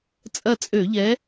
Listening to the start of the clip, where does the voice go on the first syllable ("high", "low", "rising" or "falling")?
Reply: falling